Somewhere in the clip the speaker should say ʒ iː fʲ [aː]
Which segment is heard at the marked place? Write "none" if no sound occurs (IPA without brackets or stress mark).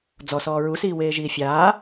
aː